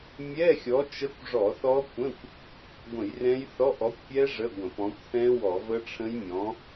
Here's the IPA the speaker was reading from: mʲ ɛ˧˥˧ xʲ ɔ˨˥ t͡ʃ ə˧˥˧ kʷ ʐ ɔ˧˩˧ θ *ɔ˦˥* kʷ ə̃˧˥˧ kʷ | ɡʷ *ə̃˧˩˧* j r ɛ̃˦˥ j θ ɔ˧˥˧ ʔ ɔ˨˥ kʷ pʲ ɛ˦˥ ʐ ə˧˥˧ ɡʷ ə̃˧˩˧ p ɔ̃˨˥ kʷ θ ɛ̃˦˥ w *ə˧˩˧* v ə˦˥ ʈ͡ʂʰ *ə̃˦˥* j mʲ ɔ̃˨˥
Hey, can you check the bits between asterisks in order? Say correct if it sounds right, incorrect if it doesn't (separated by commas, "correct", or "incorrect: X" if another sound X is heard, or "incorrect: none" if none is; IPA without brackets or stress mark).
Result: correct, correct, incorrect: ɔ˧˩˧, correct